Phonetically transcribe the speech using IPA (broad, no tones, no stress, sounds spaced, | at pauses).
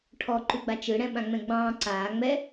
ʈʰ ɔ ǃ ʉ ɡ͡b a t͡ʃ ɯ ɽ ɛ̃ ɓ ã ŋ͡m ɛ̃ ɡ͡b ɑ̃ː ǀ aː ŋ͡m ɛ